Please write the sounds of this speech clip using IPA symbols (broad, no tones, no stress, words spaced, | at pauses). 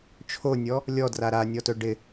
t͡ʃʰonʲɔ | lʲɔdra ɾanʲɔtɵ ɖɪ